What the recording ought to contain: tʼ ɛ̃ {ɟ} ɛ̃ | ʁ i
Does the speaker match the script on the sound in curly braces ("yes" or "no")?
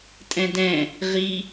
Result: no